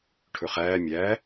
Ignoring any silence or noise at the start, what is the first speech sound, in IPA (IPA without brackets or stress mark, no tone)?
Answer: ʈʰ